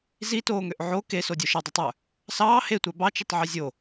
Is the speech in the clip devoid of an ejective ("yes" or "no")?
yes